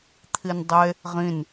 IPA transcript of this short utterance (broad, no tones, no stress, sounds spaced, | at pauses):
t̪ʰ i n dˤ e | ʁ ĩ n